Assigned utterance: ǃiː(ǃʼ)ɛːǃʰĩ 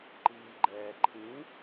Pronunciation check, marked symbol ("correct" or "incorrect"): incorrect